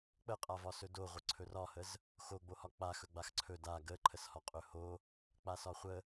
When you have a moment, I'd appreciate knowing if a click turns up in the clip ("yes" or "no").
yes